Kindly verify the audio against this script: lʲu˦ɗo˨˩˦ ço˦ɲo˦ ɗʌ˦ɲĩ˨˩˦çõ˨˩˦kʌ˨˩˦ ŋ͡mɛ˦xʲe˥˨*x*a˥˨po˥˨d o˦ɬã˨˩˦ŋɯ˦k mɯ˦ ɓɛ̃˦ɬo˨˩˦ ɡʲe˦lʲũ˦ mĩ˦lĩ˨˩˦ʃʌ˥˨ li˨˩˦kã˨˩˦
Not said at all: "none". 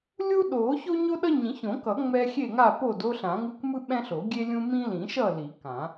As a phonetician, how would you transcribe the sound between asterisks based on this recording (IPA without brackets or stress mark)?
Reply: ŋ